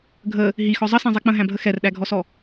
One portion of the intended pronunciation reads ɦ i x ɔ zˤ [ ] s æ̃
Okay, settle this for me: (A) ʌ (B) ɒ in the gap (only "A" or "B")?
A